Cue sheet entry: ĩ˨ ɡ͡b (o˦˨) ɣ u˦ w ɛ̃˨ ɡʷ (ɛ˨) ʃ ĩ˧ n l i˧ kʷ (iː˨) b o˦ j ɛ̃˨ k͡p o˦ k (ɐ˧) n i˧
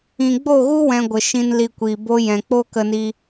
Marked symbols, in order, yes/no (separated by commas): yes, no, yes, no